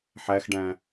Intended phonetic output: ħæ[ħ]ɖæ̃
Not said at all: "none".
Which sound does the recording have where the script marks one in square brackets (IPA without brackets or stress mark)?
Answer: x